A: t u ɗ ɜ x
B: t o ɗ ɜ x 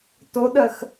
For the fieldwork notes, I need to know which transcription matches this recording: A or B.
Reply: B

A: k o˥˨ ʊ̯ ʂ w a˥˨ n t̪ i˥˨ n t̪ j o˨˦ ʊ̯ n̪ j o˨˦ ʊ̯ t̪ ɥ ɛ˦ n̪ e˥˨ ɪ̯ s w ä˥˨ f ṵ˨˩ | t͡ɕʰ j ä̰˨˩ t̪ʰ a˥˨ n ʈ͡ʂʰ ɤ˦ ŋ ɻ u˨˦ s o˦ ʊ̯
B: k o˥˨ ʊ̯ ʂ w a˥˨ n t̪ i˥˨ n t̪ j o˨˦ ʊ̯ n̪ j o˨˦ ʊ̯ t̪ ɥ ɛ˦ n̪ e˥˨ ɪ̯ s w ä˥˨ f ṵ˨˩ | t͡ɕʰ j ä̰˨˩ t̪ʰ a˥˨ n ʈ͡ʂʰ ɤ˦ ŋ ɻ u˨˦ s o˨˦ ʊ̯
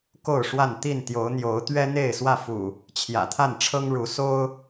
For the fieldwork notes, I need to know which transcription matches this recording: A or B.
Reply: A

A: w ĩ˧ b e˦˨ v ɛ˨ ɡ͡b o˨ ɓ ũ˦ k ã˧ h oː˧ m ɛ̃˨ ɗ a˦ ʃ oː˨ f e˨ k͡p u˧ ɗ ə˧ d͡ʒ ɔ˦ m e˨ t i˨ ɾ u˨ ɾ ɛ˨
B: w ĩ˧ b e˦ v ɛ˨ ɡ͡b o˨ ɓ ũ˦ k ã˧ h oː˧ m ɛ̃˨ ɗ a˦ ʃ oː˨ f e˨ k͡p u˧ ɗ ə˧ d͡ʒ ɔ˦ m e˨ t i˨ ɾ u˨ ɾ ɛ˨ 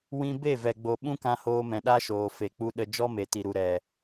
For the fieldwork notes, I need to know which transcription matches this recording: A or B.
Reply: A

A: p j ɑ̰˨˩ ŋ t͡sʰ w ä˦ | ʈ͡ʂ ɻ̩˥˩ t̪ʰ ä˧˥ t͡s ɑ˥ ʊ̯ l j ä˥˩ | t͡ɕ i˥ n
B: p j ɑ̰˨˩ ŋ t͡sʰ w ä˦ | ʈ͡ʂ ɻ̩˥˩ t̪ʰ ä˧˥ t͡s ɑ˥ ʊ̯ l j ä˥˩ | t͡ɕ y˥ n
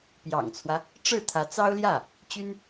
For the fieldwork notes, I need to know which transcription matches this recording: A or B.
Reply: B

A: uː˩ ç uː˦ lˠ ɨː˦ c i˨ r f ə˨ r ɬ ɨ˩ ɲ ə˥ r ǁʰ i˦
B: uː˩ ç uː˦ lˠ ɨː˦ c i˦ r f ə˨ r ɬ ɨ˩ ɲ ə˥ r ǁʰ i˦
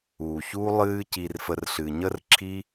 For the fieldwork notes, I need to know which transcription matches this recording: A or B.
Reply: A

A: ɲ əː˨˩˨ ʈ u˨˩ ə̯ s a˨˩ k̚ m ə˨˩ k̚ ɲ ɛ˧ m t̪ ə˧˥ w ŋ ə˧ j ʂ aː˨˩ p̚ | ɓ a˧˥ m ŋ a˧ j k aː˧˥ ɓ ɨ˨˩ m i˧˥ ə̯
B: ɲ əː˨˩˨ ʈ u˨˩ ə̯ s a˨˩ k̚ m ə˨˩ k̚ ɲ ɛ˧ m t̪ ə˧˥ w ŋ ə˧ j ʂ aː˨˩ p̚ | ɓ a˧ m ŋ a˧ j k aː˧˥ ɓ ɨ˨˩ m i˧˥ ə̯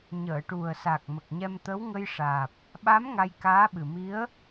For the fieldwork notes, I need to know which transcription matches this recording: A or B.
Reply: A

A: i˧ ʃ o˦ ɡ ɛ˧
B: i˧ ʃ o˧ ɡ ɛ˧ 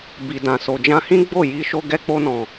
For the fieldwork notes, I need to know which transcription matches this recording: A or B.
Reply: B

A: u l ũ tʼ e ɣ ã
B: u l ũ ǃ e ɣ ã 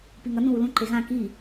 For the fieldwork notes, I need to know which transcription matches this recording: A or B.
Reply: B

